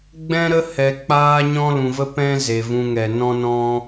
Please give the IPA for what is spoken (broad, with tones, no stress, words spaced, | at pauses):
ɡ͡bɛ̃˦ɾə˦ hɛ˨ k͡paː˦ɲɔ̃˦lũ˨və˦ pɛ̃˦ ze˨vũ˧ŋɛ˨ nɔ̃˦nɔ̃˦